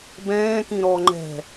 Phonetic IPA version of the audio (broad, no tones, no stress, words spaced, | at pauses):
bɛ̃ːkĩ ɾɔ ŋ͡ǃɛ̤